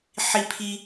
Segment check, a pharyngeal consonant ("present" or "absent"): present